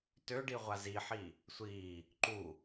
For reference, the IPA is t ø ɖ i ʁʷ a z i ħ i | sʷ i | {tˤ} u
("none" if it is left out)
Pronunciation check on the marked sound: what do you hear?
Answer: ǃ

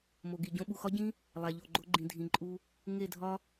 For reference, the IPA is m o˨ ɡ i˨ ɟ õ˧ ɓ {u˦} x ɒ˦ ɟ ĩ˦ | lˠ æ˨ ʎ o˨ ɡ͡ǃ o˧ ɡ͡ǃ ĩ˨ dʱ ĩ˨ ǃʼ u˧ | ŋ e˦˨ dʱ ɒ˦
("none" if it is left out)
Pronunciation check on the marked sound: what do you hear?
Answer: u˨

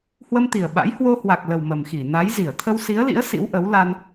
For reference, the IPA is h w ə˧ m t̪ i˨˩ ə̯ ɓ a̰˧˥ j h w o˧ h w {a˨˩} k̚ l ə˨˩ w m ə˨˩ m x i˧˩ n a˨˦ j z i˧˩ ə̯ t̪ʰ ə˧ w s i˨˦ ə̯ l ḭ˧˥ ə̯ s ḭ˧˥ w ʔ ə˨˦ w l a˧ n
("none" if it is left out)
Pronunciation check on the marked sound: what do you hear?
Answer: a˨˩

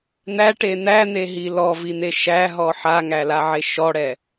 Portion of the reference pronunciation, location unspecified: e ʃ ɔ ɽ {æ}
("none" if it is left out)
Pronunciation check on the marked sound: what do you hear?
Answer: ɛ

